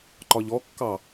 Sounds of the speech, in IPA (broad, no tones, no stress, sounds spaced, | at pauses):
ǃ ɒ ʎ ɔ kː ɑ